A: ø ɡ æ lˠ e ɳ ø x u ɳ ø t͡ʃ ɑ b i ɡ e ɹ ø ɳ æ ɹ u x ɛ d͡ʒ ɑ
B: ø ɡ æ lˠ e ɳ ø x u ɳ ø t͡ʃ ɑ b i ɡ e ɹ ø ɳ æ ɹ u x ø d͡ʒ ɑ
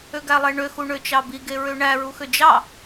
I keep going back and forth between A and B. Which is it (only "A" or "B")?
B